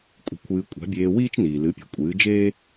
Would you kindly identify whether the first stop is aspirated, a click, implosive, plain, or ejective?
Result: ejective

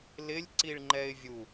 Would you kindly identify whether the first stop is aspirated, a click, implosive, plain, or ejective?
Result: click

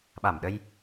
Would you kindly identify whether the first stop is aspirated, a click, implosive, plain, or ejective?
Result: implosive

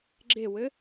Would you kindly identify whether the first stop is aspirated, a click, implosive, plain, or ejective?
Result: click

